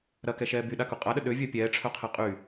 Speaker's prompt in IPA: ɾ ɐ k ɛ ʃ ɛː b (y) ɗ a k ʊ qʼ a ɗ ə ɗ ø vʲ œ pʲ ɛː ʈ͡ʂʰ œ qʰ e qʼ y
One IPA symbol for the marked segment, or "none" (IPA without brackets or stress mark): y